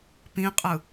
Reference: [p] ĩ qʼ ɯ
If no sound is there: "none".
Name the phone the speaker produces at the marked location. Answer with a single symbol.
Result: p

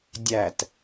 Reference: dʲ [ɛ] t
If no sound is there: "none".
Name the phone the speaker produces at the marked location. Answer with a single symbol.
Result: æ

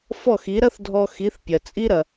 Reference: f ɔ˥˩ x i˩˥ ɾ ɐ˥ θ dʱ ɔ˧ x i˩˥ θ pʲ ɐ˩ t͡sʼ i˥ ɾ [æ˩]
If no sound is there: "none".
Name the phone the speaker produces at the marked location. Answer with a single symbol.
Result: ɐ˩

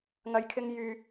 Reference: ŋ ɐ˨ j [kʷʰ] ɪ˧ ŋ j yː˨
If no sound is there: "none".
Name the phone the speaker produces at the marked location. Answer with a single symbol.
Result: kʰ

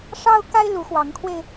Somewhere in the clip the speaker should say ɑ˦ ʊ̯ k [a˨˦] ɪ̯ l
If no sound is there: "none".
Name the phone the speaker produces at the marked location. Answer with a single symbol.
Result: a˦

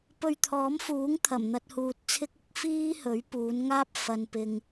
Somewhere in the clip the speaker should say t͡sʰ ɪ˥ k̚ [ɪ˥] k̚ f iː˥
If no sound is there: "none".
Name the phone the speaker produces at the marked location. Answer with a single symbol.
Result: ɪ˥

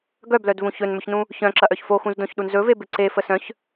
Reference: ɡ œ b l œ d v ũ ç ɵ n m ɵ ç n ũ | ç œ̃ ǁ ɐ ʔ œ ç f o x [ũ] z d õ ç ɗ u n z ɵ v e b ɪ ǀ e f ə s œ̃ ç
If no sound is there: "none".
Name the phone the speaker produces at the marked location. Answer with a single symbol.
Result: ũ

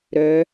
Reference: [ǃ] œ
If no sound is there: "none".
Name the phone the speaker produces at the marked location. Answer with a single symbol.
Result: ɾ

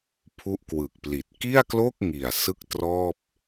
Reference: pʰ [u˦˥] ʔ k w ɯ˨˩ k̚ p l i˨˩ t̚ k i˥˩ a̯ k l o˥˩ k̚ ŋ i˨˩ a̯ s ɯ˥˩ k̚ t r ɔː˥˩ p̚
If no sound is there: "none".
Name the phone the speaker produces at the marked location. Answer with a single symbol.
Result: u˦˥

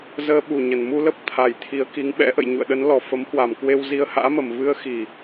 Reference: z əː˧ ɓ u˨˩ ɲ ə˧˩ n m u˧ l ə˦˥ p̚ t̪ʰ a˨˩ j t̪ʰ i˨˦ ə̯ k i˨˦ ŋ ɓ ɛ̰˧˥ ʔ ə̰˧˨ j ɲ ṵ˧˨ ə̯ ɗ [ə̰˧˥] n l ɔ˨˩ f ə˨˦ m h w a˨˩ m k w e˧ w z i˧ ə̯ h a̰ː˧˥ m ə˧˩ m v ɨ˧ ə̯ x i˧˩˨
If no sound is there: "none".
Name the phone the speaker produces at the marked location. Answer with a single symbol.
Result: ə˨˦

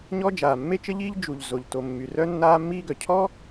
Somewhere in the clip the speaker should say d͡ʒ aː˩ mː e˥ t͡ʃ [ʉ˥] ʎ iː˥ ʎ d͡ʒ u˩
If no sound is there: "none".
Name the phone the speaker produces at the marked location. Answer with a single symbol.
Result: ə˥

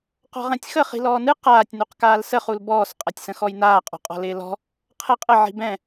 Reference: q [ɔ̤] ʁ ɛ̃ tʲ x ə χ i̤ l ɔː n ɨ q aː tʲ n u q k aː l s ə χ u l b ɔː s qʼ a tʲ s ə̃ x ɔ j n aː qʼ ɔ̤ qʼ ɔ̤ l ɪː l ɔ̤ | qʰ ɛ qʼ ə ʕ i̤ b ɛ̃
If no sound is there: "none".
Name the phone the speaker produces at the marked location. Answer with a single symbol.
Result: ɔ̤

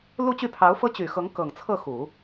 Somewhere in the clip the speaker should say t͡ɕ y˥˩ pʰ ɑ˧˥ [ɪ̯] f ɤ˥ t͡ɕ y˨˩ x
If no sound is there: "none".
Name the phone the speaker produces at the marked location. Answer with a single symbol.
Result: ʊ̯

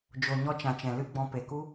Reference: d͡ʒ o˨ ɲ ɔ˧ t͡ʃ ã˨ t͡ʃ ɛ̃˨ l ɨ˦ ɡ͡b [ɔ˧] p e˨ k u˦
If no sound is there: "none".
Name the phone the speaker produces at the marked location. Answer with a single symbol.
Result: ɔ̃˧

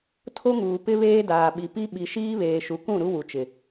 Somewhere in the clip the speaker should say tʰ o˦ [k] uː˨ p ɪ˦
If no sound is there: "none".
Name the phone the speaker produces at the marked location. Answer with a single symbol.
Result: ŋ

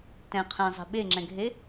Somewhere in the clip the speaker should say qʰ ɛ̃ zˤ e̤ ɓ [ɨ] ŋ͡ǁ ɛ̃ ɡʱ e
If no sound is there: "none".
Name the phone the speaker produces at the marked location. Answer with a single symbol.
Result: e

